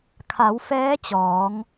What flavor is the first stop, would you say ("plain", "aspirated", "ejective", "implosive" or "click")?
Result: aspirated